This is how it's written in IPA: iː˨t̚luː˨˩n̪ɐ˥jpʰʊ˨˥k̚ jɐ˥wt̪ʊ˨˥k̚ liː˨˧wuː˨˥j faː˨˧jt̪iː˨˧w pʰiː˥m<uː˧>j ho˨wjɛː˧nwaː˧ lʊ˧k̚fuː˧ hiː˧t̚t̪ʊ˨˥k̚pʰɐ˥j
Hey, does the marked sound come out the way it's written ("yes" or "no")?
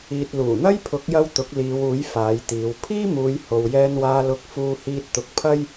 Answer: no